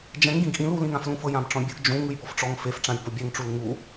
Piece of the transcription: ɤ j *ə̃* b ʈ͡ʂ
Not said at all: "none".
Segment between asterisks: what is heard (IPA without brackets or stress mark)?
ã